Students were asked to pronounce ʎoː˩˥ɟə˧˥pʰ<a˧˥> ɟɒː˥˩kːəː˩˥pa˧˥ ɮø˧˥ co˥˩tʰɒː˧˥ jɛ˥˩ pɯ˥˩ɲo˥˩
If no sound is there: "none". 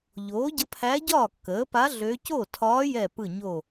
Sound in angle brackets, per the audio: æ˧˥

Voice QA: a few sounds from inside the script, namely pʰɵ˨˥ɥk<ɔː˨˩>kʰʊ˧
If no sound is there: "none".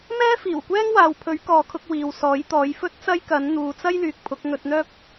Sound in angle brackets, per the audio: ɔː˨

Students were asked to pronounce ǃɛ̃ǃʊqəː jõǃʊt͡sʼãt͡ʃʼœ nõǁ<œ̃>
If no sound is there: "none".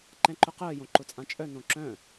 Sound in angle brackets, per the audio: œ̃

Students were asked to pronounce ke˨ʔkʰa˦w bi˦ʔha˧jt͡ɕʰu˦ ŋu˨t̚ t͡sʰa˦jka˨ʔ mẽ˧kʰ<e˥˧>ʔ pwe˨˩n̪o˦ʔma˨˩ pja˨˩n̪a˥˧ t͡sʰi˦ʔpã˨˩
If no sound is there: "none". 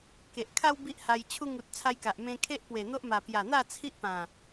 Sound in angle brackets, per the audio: e˦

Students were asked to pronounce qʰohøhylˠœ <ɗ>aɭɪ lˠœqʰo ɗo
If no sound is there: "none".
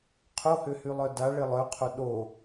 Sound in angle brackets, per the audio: d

